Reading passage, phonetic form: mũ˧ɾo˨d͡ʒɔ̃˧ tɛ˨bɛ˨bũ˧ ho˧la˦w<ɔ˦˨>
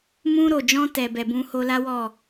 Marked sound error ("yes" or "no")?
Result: no